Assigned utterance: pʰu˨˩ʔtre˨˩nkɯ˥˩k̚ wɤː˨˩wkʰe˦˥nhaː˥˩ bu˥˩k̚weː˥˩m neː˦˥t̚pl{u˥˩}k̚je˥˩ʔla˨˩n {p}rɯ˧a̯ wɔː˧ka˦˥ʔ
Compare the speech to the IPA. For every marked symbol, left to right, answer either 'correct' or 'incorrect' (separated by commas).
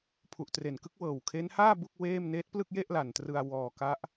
incorrect, incorrect